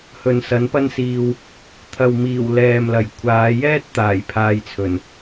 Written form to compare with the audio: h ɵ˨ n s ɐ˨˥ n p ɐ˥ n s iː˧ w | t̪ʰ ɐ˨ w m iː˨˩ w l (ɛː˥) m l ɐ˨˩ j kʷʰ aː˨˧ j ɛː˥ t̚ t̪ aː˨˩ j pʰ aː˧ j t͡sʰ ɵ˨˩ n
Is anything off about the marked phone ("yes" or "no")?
yes